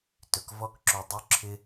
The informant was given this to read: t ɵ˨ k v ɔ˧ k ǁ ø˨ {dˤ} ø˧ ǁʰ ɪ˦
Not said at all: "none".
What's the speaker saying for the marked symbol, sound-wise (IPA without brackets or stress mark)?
dˤ